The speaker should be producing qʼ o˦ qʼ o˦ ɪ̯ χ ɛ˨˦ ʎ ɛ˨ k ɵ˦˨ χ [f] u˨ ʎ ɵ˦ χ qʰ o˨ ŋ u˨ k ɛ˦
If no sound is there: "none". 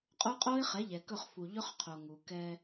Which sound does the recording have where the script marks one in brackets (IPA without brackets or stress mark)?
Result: f